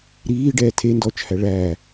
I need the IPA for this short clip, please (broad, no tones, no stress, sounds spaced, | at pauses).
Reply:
ɾ iː ɖ ɛː tʰ e n d ɔː t͡ʃ h æ ɭ æː